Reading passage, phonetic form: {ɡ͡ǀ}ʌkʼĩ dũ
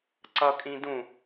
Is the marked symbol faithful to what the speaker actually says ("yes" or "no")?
no